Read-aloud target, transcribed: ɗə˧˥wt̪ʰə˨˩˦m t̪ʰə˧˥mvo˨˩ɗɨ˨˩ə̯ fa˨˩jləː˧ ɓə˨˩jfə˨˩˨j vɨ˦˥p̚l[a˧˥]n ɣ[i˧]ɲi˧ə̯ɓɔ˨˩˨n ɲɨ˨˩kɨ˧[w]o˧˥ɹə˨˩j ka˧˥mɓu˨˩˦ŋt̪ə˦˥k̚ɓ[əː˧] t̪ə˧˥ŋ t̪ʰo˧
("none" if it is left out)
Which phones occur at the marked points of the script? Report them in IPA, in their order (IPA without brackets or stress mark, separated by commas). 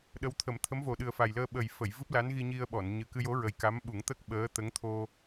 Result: a˧˥, i˧, j, əː˧˥